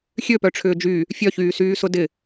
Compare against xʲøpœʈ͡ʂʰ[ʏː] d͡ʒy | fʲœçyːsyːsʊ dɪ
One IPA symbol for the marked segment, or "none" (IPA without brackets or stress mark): ʏː